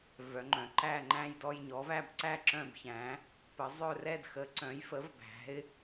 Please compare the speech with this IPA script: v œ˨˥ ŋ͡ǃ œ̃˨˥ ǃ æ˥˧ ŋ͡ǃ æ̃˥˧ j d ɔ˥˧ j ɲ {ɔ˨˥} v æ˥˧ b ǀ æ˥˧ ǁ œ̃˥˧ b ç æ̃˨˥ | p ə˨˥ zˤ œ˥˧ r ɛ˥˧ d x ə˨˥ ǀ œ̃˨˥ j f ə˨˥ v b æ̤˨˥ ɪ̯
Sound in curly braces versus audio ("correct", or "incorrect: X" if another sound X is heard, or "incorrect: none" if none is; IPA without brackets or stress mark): correct